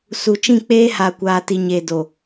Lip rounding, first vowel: rounded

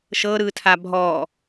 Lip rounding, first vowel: unrounded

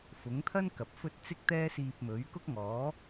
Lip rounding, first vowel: rounded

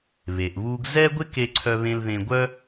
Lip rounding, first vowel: unrounded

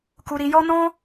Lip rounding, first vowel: rounded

